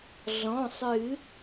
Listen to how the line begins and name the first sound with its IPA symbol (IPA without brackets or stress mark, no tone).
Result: ɮ